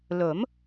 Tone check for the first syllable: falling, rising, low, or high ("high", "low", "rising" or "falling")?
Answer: rising